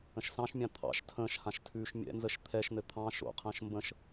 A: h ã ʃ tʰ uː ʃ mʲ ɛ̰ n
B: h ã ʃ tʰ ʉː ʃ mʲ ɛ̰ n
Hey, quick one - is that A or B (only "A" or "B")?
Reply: B